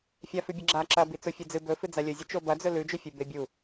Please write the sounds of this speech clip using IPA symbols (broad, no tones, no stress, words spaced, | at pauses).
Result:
fʲafʉbʲɐɡ͡ǁa ǁɐ bit͡sofʲʉd͡zɨ bɵfɨ d͡zalʲɵzʲɨ t͡ʃobɐd͡zɵ lʉd͡ʒɵfʲɨ bebʲu